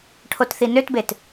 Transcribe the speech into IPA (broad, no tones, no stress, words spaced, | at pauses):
ʈʰotθinøtbet